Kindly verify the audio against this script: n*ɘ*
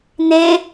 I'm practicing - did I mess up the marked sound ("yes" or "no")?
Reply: yes